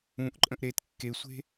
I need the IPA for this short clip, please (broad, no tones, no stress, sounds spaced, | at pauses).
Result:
ũ ʔ ǃʼ ə̃ ʔ ɾ e t kː e sʷ e̤